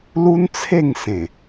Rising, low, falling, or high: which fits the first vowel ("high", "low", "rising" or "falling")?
high